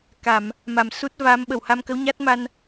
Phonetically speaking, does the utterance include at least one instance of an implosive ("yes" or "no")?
yes